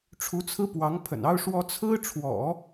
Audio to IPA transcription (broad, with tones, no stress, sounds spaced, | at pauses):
ʈ͡ʂʰ u˧˥ t͡sʰ ɹ̩˥ p w ɑ˧˥ ŋ pʰ ə̰˨˩ n ɑ˥ ʊ̯ ʂ w ɔ˥ t͡sʰ ɹ̩˥ ʈ͡ʂʰ w ɔ̰˨˩˦